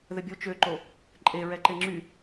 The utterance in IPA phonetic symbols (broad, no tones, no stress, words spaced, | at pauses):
ðəbʲo t͡ʃøǃo | ǃʼeɹɛǃe ŋ͡ǁy